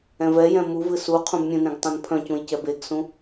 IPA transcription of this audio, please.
ɛ̃ v ɛ j ɛ̃ m u v ɨ s u qʰ ũ b mʲ ũ n ẽ ɡ tˤ ɛ̃ n pʰ œ̃ c ũ j c ɛ b e ɡ s ũ

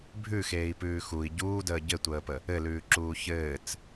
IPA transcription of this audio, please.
bʱ ʉ x eː i̯ p ʉː x u i̯ ɟ uː d əː ɟ ɘ tʷ əː p ə | ɘ l ʉː ǁ uː ç ɘː t͡s

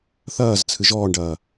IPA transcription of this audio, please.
θ ɐː z t͡sʰ ɨ ʒ ɔː ɳ ɖ ɐː

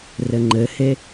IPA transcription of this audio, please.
r ɘ ŋ͡ǃ ɘ h e

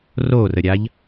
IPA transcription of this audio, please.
r o r ə ɾʲ a ʎ

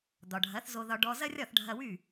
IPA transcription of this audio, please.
d̪ ɒ˩ ɖʱ ɐ˩˥ θ z o˧ ð ɒ˧ ɖ ɔ˧ z ɐ˥ rʲ ɒ˥˩ θ ɖʱ ɐ˧ w y˥˩

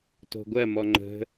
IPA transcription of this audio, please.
t o̤ ɡʷ ɜ m ɔ ŋ͡ǃ ə̤

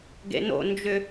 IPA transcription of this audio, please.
ɡ ḛ n o̰ n d͡ʒ ʏ

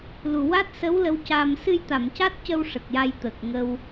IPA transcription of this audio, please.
l u˨˩ w a˦˥ t̚ s ə˧˥ w l ə˧˥ w c a˧ m s ɨ˧ j t̪ a˨˩˨ m c a˦˥ t̚ c ə˧ w ʂ ə˨˩ k̚ j a˧ j t̪ ə˨˩ k̚ ŋ ə˧ w

